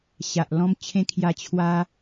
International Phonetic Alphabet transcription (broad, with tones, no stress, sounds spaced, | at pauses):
ɕ a˨ ʔ l ɔ̃˧ m t͡ɕʰ ẽ˧ kʰ j a˧ t͡ɕʰ w a˧